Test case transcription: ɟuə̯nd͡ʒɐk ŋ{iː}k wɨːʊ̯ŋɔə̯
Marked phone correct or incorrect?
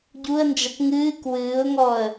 incorrect